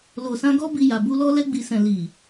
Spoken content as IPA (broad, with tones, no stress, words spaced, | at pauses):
lo˨sã˧ ɡɔ˦bi˧ja˨bu˧ lɔ˧lɛ˧ɡ͡bi˨sɛ̃˨ li˨